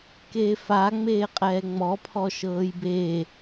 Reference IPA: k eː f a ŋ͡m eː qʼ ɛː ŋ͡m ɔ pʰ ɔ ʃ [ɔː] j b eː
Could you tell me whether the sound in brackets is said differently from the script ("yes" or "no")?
yes